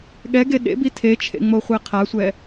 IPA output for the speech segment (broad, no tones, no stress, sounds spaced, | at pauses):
ɠ ɛ ɡ e ɗ ḛ b i tʰ e t͡ʃʰ ḛ ŋ͡m o χʷ ɛ qʰ a sʷ ɛ